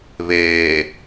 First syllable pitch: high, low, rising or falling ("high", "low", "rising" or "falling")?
low